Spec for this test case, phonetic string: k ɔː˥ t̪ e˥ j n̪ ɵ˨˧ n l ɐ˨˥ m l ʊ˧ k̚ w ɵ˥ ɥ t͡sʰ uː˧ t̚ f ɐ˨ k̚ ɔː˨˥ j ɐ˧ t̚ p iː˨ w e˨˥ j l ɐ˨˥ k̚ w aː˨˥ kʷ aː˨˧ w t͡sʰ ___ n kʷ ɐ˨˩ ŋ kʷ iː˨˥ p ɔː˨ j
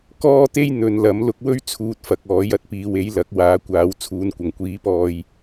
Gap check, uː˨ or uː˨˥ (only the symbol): uː˨